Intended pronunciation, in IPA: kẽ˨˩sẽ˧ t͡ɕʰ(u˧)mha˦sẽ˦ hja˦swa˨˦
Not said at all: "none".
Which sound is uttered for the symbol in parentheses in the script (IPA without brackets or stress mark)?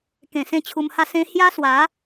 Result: u˧